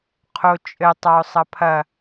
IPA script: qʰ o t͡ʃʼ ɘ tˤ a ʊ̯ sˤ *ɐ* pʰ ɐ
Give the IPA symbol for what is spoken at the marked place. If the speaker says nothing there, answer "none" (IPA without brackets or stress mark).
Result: ɐ